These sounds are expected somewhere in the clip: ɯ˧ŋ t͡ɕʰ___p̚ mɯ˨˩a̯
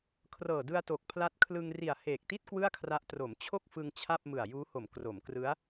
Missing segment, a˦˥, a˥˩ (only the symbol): a˥˩